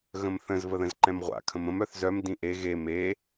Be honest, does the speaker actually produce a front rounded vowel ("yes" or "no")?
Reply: yes